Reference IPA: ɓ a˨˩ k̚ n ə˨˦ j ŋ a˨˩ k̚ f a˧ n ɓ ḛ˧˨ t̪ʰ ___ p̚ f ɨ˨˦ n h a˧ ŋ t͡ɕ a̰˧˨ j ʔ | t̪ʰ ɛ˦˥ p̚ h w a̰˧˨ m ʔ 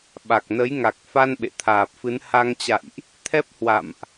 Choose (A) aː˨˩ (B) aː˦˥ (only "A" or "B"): A